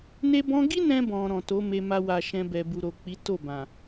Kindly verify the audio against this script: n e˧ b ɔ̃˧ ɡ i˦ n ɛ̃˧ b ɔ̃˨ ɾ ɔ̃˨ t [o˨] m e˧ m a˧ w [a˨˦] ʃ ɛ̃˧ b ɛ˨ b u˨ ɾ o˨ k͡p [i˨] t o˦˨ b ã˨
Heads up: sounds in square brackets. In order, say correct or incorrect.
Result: incorrect: o˨˦, incorrect: a˨, incorrect: i˨˦

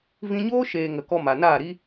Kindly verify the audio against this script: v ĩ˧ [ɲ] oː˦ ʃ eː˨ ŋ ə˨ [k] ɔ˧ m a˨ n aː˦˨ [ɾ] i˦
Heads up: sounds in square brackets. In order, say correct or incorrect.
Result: correct, correct, correct

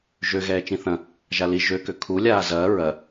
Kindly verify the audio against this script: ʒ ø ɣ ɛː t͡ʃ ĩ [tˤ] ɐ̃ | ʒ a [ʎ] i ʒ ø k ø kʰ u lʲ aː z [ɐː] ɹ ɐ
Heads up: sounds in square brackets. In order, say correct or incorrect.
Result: incorrect: θ, incorrect: l, correct

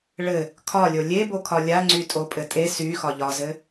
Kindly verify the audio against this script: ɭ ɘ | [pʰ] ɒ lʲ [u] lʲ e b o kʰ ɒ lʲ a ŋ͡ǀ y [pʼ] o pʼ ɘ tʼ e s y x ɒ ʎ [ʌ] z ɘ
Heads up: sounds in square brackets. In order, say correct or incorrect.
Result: incorrect: kʰ, incorrect: o, incorrect: tʼ, incorrect: ɒ

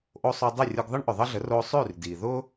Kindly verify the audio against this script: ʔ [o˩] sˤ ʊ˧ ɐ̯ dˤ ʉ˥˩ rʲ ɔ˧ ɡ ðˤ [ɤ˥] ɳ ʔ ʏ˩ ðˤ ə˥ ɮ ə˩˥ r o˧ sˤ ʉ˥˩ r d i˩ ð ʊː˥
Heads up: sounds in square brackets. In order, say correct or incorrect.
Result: incorrect: o˧, correct

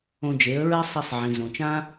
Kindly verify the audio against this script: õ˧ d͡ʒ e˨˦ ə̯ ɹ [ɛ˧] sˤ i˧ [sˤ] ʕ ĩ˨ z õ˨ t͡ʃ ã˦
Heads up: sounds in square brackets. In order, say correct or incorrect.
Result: incorrect: ɛ˦, correct

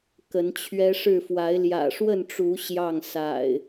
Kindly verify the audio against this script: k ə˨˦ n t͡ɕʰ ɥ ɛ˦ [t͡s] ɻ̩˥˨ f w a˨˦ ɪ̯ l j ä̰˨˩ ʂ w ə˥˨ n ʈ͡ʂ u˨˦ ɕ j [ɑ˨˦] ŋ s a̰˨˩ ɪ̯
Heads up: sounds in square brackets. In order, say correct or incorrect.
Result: incorrect: ʂ, incorrect: ɑ˥˨

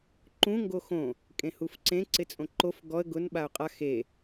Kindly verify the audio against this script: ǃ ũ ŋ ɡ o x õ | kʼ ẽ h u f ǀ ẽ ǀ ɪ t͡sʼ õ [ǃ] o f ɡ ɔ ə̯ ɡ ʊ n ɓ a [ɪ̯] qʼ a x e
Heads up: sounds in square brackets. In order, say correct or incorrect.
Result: correct, incorrect: ʊ̯

